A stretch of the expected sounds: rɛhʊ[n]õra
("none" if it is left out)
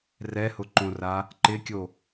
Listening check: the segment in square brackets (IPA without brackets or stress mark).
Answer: ǃ